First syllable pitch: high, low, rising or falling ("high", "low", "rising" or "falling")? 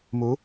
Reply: rising